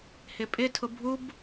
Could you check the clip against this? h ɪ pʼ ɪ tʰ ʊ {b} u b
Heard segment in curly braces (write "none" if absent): bʱ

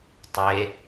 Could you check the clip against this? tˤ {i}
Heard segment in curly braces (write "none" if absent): e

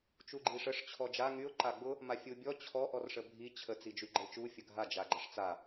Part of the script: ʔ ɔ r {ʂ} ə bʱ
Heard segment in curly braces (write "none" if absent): ʂ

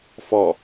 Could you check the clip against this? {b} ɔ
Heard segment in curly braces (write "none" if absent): f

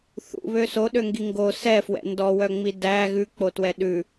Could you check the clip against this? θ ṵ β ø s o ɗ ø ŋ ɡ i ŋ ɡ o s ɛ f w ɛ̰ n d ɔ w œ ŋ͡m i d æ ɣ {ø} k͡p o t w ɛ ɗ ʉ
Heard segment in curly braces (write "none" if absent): ʉ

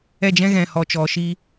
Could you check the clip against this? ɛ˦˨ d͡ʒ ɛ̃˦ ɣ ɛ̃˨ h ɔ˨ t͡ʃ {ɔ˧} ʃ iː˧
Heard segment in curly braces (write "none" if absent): ɔ˨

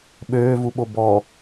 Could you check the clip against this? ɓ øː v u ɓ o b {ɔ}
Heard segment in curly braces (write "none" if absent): ɔ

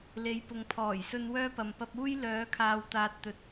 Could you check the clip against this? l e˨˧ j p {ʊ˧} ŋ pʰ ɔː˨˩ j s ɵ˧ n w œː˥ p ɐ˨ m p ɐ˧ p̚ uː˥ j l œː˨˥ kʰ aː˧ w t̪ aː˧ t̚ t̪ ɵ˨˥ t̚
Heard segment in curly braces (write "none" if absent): ʊ˨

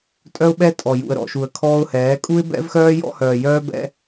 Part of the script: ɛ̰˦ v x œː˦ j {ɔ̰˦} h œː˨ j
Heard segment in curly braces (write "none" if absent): ɔ̰˦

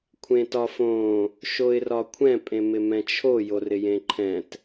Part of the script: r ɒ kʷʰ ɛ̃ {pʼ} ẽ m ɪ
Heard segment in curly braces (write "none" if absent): pʼ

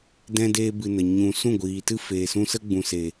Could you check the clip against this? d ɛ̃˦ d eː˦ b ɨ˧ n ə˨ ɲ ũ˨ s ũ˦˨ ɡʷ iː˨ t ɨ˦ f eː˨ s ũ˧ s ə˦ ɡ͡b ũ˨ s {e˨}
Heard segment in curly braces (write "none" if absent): e˨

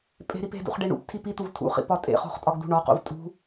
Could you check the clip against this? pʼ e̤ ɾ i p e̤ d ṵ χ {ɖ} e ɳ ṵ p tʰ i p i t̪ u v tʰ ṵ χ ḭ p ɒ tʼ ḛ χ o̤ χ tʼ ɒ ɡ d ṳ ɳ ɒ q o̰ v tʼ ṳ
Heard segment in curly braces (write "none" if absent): ɖ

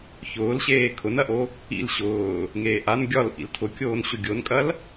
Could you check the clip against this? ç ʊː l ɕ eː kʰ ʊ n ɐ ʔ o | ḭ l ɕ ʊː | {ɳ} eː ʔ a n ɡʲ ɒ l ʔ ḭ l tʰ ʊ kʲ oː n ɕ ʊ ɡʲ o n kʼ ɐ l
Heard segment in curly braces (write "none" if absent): ŋ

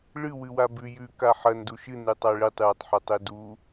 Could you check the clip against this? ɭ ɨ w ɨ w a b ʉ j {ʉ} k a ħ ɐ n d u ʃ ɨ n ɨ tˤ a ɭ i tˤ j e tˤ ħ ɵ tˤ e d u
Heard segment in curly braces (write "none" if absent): ʉ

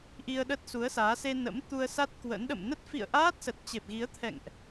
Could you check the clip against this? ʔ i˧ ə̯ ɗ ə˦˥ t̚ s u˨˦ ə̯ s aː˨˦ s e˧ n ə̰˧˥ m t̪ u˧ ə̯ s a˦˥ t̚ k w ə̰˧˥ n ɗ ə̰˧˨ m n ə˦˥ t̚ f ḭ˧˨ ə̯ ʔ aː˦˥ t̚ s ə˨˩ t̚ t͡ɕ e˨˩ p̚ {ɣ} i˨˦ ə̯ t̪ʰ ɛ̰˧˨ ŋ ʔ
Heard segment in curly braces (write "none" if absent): ɣ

